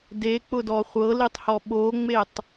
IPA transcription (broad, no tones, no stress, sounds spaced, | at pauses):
d e k͡p ʊ d ɔ χʷ ɤ l i tˤ h ɔ ɓ o ŋ͡m e tˤ